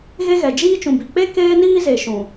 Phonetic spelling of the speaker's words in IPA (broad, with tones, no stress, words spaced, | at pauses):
ɣe˦ɣɛ˨ d͡ʒiː˦t͡ʃũ˨bi˨ k͡pe˦ keː˦niː˦ze˨ ʃũ˨